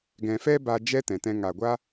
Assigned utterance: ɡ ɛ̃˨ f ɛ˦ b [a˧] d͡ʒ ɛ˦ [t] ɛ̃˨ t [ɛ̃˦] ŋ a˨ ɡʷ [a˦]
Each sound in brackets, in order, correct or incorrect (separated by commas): correct, correct, incorrect, correct